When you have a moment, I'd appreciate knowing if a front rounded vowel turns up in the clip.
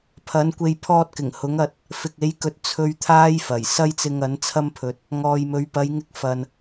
no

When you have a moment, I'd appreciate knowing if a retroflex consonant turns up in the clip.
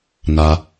no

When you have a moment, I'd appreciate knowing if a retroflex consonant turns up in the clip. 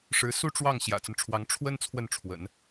yes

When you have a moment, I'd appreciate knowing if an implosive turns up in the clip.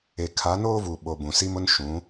yes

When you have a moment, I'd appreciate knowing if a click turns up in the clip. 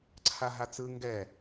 yes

